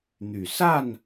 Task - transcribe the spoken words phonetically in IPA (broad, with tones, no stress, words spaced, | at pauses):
n̪y˨˩ sa˥˨n